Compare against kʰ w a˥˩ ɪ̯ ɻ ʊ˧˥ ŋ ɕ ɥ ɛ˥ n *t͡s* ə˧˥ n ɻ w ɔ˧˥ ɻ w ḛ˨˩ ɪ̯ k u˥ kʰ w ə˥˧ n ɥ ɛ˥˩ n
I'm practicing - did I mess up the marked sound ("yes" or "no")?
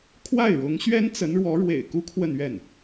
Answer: no